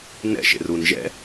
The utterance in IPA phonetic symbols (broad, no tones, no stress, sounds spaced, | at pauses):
n ɛ̰ ʃ ḛ r u n ʒ ɛ̰